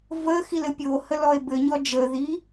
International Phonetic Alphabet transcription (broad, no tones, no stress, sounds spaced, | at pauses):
v ə x i l ɘ pʲ o h ə l ɔ e̯ b ɘ ɲ ɔ d͡ʒ ə ð i